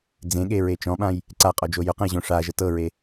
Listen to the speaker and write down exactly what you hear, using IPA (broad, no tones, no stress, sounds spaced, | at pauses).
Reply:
d͡z ẽ ɠ e ɹ e t͡ʃ ɔ̃ ɓ ã j | ǀ a qʼ ɔ d͡ʒ o j ʊ q ə̃ j ʑ õ ʂ a ʒ ə t ɤ ɹ e